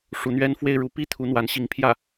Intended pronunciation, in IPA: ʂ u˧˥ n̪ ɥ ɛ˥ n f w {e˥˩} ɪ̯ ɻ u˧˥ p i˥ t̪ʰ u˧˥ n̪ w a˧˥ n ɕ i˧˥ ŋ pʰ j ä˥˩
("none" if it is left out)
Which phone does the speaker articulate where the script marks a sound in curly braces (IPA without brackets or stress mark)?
e˥˩